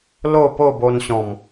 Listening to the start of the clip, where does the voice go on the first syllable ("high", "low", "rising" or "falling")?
falling